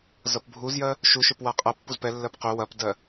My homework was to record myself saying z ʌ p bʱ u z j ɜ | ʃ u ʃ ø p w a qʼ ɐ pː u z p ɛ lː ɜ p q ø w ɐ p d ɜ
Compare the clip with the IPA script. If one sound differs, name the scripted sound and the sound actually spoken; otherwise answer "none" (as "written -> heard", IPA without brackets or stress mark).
none